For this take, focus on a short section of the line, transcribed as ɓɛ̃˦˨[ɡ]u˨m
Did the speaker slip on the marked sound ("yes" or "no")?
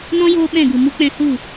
no